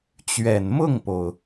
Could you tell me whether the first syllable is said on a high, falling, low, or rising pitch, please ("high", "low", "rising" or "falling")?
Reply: low